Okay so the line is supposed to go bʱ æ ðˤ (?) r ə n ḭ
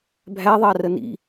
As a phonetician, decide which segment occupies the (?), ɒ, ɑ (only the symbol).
ɑ